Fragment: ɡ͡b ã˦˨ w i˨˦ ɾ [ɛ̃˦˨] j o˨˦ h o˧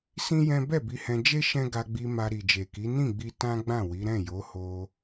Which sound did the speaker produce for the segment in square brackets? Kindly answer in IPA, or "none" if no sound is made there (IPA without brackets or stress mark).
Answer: ɛ̃˦˨